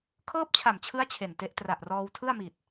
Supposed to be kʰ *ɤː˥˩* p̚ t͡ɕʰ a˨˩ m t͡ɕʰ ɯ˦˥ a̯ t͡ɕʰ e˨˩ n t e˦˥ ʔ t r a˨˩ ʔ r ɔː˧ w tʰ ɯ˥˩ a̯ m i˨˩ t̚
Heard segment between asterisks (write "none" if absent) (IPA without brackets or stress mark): ɤː˥˩